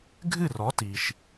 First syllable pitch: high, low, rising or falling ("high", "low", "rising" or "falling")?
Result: falling